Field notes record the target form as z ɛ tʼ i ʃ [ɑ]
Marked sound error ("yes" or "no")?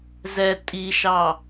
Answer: no